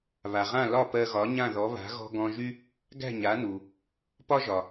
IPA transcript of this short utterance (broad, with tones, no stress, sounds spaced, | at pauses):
β a˩ ʁ ã˥˩ l ɒ˥˩ p ɜ˧ ɣ ɒ˩˥ ɲ ã˥˩ ð ɔ˩˥ β a̤˩˥ ɣ ɔ̤˧ ɡ ɔ̃˧ ʒ y˥ | ɡ æ̤˥˩ ɲ a˩˥ n u˩ | p ɒ˥ ʒ ɒ˩